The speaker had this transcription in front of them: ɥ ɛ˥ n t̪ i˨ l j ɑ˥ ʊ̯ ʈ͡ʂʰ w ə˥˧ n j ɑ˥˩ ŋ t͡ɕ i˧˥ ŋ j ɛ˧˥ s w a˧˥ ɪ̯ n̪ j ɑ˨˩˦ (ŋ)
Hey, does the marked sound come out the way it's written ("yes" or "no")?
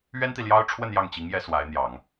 yes